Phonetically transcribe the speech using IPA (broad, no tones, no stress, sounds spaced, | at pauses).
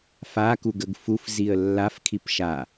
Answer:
f a k u ɡ ə ɡ f u f z i ə̯ lː a f kʰ i p ʃ a